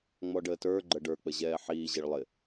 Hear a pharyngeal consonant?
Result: yes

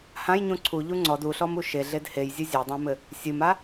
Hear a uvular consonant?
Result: no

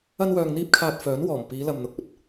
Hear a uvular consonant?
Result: no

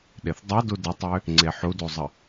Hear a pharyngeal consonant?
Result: yes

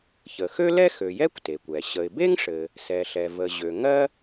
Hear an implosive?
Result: no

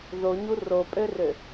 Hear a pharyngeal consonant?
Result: no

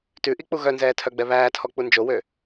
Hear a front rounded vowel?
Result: yes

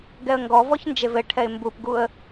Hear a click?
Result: no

